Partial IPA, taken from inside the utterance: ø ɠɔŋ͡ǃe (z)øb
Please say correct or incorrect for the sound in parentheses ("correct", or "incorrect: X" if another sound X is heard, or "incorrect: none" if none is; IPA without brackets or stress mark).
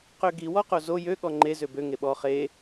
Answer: correct